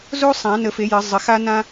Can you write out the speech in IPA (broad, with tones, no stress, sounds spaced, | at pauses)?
z o˥ sˤ ã˨˩˦ n ə˨˩˦ f e˨˩˦ j ə˨˩˦ zˤ ə˨˩˦ x a˥ n ã˥